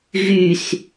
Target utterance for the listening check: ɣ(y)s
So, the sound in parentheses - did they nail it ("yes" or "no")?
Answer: yes